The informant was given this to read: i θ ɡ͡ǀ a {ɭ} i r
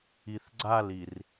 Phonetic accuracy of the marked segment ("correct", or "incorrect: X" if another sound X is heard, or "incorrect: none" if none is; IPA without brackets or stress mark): incorrect: l